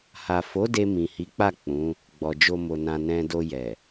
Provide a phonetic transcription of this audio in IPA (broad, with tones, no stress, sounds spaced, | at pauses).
h a˨ f o˨˦ d e˧ m ĩ˨ h i˨˦ k͡p a˦˨ k͡p ũ˨˦ | ɡ͡b ɔ˧ d͡ʒ o˦ m o˧ n ã˧ n ɛ̃˧ d o˧ j ɛ˨